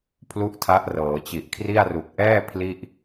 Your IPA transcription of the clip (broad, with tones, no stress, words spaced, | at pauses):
pʰlu˥˩ʔtʰa˦˥ʔrɤː˩˦ t͡ɕi˨˩ʔkʰri˥˩a̯ru˨˩k̚ ʔɛː˥˩ pʰli˥˩ʔ